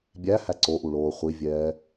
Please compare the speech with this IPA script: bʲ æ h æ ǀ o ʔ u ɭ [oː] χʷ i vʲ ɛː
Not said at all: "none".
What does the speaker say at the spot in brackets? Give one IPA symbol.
oː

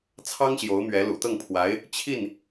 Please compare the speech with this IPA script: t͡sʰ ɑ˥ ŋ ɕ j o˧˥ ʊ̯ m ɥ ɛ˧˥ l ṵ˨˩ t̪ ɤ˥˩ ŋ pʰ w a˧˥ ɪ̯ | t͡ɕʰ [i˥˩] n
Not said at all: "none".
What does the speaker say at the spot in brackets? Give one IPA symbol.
i˥˩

